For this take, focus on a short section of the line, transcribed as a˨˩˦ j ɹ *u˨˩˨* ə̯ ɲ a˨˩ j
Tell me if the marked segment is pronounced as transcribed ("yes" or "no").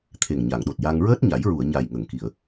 yes